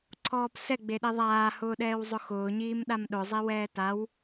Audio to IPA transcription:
ǀʰ ɔː p s ɛ ɡ͡b e ɗ i ðˤ aː h ʊː ɗ ɛː w zˤ ʊ x ʊː ɲ iː m ɗ a m ɗ ʊ zˤ i w ɛː t a w

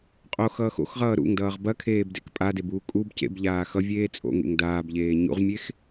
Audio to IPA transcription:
qʼ o x ʌː x o̰ x ʁ ʌː ɾ ṵ ŋ d ʌː ʁ b ɐ kʰ eː b d ḛ k pʼ a d e b uː kʼ u b c ḛ b ʎ aː x ʌ vʲ eː t͡sʼ o̰ ŋ ḛ ŋ d aː b ʎ eː ɲ ṵ ʁ mʲ e x

